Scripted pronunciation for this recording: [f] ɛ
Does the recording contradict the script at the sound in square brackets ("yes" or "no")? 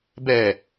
yes